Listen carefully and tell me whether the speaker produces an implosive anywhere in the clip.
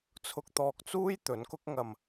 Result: no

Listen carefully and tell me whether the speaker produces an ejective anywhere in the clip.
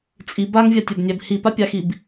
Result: yes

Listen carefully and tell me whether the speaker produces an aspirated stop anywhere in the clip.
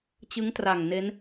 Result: no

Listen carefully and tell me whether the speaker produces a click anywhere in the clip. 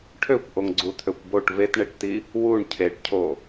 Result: yes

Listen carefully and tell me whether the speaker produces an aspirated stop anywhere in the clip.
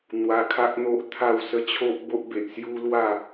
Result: yes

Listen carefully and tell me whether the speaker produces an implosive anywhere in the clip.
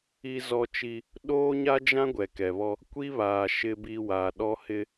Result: yes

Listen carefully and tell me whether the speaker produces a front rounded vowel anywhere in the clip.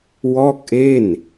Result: no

